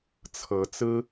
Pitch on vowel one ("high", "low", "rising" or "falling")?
rising